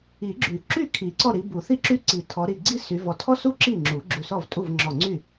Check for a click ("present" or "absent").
present